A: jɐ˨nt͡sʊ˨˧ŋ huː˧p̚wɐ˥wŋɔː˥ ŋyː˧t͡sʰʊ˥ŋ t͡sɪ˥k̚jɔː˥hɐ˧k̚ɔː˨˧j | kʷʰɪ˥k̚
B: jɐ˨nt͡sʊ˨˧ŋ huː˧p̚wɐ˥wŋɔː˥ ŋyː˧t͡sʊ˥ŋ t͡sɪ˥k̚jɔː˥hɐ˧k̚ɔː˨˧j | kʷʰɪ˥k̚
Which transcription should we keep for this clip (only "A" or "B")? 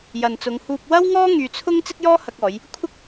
A